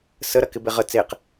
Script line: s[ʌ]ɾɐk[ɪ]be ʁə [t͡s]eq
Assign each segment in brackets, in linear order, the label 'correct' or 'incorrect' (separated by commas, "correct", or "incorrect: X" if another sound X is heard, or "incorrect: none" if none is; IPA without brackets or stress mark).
incorrect: ə, correct, correct